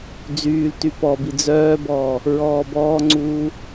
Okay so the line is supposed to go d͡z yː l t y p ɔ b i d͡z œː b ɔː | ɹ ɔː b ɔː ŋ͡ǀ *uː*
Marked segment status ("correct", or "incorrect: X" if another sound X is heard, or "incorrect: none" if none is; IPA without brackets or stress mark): correct